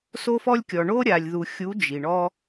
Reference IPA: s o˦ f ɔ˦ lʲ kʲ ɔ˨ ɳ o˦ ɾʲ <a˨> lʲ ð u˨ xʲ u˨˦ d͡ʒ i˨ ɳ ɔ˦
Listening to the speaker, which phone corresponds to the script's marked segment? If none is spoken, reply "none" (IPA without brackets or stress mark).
a˨